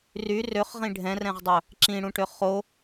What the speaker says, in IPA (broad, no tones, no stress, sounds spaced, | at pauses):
r y r ø χ ʁ ĩ ɖʱ ɛ̃ r ɛ̃ ʁ dˤ œ | ǁ ĩ ɽ ũ ʈ ø χ o